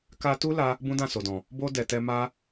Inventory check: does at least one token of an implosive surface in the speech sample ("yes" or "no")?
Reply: no